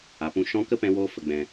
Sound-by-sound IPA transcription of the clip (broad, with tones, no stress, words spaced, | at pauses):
a˨pũ˧ʃɔ̃˦ kə˦pɛ̃˧woː˧ fə˨ɡ͡bɛ̃˨